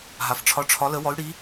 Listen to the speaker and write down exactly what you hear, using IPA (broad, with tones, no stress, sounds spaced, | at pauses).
ɦ a˨ f ʈ͡ʂʰ ɒ˧˥ ʈ͡ʂʰ ɒ˧˥ l ə˧˥ w ɔ˧˥ y̯ ɽ i˧˥